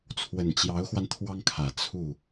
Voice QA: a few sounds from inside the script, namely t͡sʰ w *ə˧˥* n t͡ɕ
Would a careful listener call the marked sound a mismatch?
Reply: yes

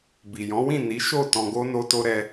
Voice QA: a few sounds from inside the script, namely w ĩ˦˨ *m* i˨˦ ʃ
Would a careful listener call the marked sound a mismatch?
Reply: yes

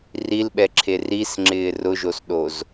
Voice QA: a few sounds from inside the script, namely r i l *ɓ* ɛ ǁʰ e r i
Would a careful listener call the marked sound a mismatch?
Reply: no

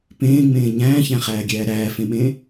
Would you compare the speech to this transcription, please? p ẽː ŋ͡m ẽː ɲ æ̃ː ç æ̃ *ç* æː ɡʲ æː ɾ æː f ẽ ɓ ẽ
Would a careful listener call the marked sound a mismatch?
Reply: yes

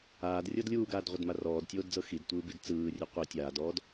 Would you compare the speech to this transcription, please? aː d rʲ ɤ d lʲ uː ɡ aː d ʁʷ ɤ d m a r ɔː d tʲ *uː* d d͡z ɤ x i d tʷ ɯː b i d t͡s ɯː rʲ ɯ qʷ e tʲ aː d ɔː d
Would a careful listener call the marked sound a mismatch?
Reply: yes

